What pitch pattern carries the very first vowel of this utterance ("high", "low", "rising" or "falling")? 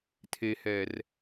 low